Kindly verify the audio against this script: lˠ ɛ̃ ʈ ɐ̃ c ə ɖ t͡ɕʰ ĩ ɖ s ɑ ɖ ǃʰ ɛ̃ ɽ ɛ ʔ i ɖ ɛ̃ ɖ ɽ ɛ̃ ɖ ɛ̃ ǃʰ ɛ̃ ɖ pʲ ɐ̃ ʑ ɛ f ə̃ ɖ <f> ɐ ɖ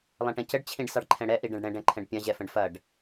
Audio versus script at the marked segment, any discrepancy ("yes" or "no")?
no